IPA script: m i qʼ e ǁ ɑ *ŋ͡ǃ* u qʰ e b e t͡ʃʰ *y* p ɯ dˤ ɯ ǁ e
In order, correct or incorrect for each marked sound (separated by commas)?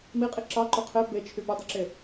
incorrect, correct